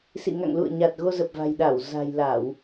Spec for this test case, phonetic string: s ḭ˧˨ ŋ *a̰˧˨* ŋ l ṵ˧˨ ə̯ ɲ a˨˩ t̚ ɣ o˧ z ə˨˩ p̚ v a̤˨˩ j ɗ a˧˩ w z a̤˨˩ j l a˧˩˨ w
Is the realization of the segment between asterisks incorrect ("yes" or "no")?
no